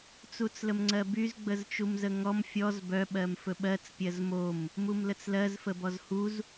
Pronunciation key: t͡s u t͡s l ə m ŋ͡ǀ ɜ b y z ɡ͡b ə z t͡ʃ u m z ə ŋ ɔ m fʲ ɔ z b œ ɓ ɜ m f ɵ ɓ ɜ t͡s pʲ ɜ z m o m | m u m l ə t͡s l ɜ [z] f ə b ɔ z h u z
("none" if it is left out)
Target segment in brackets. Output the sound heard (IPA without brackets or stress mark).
z